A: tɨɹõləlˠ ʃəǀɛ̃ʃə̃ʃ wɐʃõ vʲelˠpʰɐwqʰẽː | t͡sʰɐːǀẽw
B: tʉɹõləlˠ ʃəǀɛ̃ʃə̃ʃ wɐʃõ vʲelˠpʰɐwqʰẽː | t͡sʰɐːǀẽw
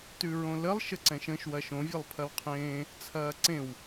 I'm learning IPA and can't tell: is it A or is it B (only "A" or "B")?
B